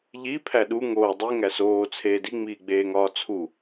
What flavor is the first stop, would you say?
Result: aspirated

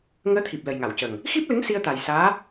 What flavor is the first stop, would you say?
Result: aspirated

